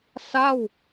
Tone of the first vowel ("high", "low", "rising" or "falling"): falling